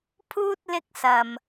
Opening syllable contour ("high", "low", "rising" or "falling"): high